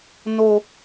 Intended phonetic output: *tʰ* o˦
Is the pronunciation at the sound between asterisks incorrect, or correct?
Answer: incorrect